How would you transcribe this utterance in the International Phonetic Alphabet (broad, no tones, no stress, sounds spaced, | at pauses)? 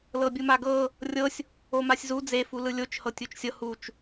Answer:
l ɤ bʲ u m a ɡ ɤ | rʲ ɤ sʲ | o m a sʲ z u d͡z e f u l ɯ lʲ o t͡ʃ h ɤ tʲ u t͡ʃ sʲ ɤ h u t͡ʃ